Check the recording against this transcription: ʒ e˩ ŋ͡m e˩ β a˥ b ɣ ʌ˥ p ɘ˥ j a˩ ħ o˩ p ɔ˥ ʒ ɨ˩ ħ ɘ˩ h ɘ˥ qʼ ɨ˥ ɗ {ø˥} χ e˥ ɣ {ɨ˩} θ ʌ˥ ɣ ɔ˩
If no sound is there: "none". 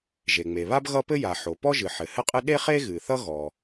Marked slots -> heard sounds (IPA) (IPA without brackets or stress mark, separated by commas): e˥, ɨ˩